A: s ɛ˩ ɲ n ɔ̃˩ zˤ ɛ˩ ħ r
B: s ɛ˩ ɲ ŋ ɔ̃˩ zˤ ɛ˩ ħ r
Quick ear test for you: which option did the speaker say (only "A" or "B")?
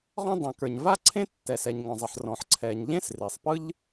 B